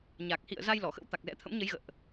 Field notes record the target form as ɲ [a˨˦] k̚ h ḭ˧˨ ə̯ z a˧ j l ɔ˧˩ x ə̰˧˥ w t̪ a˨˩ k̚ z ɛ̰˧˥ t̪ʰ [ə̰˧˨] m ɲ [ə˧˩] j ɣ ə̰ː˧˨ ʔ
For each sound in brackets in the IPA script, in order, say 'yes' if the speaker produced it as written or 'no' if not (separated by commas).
no, no, no